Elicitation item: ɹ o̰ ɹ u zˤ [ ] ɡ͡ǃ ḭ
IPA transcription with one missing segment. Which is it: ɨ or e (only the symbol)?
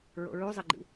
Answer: e